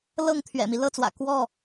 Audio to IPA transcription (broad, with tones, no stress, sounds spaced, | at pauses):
l ɤ˥˨ ŋ t̪ʰ ɥ ɛ̰˨˩ m i˦ l ɤ˥˨ t͡s w ä̰˨˩ k w ɔ˥˨